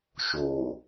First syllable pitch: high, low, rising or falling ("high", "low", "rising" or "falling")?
low